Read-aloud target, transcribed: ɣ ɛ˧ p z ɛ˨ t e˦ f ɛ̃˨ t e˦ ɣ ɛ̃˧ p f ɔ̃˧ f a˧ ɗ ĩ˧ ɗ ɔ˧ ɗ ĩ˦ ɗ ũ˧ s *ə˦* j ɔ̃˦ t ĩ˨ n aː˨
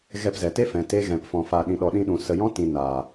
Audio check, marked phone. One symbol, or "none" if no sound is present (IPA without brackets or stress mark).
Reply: ə˧